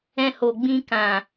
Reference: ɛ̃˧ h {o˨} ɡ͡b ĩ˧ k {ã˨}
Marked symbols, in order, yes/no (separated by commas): yes, yes